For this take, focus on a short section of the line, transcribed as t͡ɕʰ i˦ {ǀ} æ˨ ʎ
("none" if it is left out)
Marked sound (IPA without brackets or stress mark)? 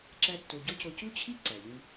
ǀ